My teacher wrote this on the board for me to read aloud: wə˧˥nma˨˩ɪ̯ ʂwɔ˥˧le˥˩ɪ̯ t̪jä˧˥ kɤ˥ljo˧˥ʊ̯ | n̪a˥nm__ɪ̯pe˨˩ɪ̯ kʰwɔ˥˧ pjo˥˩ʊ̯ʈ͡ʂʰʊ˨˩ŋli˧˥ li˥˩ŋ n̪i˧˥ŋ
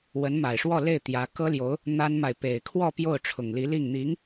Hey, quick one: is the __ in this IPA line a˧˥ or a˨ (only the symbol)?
a˨